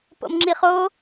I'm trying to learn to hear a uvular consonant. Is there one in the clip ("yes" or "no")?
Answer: yes